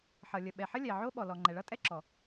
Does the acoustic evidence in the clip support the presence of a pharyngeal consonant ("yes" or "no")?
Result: yes